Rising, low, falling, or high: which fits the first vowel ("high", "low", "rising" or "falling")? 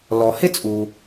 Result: low